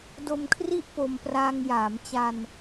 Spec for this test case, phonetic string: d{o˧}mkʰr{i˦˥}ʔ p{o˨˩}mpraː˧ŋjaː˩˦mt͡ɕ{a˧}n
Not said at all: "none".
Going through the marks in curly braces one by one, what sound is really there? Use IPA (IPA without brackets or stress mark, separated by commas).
o˧, i˦˥, o˧, a˧